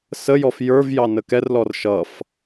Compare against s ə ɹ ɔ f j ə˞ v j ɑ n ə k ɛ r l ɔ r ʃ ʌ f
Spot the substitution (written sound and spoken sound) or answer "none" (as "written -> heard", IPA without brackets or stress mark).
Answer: ɹ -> j